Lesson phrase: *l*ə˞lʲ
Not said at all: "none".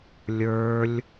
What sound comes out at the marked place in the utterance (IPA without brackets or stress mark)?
lʲ